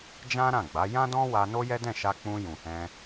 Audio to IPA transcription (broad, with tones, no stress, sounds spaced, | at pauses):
d͡ʒ ã˦ ɾ ã˦˨ ɡ͡b a˨˦ j ã˦ d ɔ̃˦ w a˧ n o˦ j ɛ˦ d ɛ̃˦˨ ʃ a˧ k͡p ũ˧ j ũ˨ h ɛ̃˧